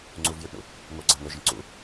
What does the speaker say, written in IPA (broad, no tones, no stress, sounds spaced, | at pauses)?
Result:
ŋ͡ǀ u v j ø ʈ ɳ ṵ | ŋ o ɡ͡ǀ a ŋ ɵ ʒ ə̃ ǀ ṵ